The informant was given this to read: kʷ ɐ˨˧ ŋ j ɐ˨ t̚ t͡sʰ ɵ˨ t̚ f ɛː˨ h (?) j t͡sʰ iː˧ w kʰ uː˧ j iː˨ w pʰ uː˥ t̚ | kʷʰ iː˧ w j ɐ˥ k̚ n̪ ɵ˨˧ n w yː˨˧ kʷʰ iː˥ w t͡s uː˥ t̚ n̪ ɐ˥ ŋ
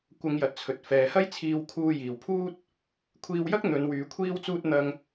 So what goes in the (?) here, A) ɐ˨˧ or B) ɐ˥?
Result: B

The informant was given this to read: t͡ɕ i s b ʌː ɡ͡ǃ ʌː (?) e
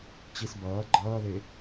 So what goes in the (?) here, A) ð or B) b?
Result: A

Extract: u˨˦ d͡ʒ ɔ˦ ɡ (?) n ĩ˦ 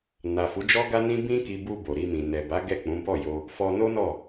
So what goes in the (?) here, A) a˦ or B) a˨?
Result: A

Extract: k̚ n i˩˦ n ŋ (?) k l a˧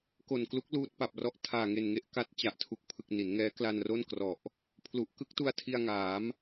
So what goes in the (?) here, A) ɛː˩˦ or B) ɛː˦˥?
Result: B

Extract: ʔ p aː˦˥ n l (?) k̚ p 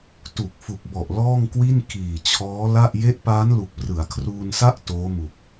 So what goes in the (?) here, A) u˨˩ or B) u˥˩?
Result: A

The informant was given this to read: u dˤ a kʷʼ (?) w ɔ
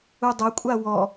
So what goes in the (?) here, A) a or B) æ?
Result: A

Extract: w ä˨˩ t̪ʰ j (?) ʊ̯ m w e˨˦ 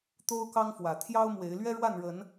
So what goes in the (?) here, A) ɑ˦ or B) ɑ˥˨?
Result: A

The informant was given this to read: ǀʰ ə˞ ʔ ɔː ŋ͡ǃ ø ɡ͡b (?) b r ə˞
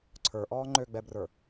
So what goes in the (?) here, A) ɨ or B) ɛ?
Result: B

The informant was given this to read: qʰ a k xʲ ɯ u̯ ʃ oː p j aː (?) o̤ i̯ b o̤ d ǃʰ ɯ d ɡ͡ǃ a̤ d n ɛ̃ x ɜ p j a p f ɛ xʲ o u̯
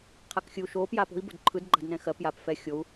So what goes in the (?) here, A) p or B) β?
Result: A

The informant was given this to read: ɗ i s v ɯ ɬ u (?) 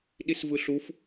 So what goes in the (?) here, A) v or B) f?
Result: B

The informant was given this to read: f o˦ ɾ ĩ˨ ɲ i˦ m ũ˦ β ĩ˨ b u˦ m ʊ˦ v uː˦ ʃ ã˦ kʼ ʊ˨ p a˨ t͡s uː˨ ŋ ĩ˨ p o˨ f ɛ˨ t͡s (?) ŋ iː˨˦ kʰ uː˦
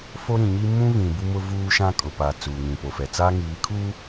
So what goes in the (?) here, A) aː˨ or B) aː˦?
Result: B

